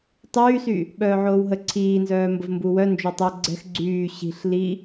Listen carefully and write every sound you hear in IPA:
tˤ yː s y | ɓ œː ʕ oː w ɦ ə ǀʰ iː n z œː m b ə v m b u w œ n d͡ʒ o tˤ œ ɡ͡ǀ ɛ̤ x ɡ͡ǀ yː ɕ i̤ ɬ l i

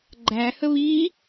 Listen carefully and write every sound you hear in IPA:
ɡ͡ǃ æ h ə β i

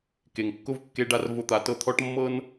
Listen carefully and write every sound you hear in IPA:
k e˨ ŋ kː ʊ˦ v kː e˦ ɖ a˦ r v ʊ˦ t̪ a˦ t ɤ˦ t̪ʰ ɔ˦ ʈ mː ɤ˦ n

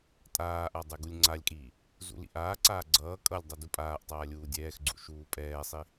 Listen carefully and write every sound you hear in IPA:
tʼ aː ʔ a dˤ ɛ ɡ u lʲ ŋ͡ǀ a lʲ kʼ iː | z ṵ l ḭ ʔ aː ǀ aː ɡ͡ǀ ʌː kʼ ʌ lʲ dˤ ʌ d u pʼ aː ʔ tˤ aː lʲ uː dʲ ɛː x ɡ͡ǀ ṵ ʃ uː pʼ ɛː sˤ i

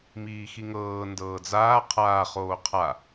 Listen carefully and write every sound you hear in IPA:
m iː x i ŋ ɤː n d ɤː d͡z aː qʰ aː χ oː qʰ a

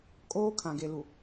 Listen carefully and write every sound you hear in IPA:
kʼ oː˦ kʰ ã˨ ɡ e˨ l u˨

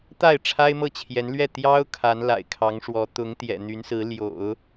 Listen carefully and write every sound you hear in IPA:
t̪ a˥˩ ɪ̯ ʈ͡ʂʰ a˥ ɪ̯ m ɤ˥˩ t͡ɕʰ j ɛ˧˥ n l ɥ ɛ˥˩ t̪ j ɑ˥ ʊ̯ kʰ a˧˥ n l a̰˨˩ ɪ̯ kʰ ɑ˧˥ ŋ ʂ w ɔ˧˥ t̪ ʊ˧˥ ŋ t̪ j ɛ̰˨˩ n̪ y˧˥ n s ɹ̩˧˥ l j o̰˨˩˦ ʊ̯

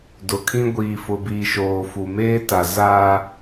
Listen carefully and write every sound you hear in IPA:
d ʊ˨ kʰ ĩ˦ ɡʷ iː˨ f ʊ˨ b iː˨ ʃ oː˨ f u˨ m eː˦ t a˨ z a˦

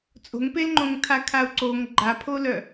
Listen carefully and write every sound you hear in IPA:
t͡sʼ o̤ ŋ p e l ŋ͡ǃ õ ŋ tʰ a kʰ a u̯ ǀ o ŋ ɡ͡ǃ a pʰ o l œ

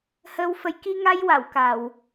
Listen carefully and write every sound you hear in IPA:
h əː˧ w f ə˧˥ j k i˧ ŋ a˧ j w a˨˩˨ w k a˨˩˨ w

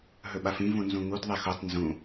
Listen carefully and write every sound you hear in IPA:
ɦ ɵ ɓ a f ĩ v ũ n z ũ ŋ u d ðˤ e x o tˤ n z ũ

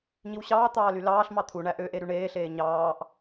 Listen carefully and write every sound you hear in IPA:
ɲ i w ɕ ɑː t̪ ɑː l y l ɑː ɬ m ɑ t̪ʰ u ɳ æ ʔ ø ʔ e ɾ y ɳ eː ɬ eː ɲ ɑː ʔ

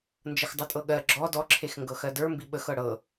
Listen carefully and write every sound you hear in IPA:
n d͡ʒ ə x dˤ ɯ tʼ ɤ ɠ ɜ ɡ͡ǁ ɔ d ɔ ǁʰ e x ŋ ɡ ɤ x ɜ d ə˞ m b i ɓ ə x ɤ ɽ ɤ

